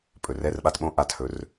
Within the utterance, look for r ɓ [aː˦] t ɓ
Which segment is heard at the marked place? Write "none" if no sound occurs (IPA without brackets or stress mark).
a˦